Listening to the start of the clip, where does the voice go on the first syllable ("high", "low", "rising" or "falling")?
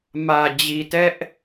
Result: low